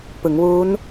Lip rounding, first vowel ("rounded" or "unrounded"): unrounded